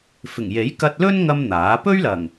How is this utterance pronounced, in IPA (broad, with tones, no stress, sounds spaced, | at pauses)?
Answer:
f ɪ˨˩ ŋ j e˨˥ j k ɐ˧ t̚ l ɵ˥ n ŋ ɐ˥ m n̪ aː˨˥ p ɵ˥ ɥ l ɐ˨˩ ŋ